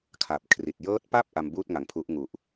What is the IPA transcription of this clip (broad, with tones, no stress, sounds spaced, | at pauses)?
kʰ a˨˩ p̚ kʰ r i˨˩ t̚ j ɤː˦˥ t̚ p a˥˩ p̚ ʔ a˧ m b uː˥˩ t̚ ŋ a˩˦ ŋ pʰ u˦˥ ʔ ŋ u˨˩ ʔ